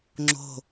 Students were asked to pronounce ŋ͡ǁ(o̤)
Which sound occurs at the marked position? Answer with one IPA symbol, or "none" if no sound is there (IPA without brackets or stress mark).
o̤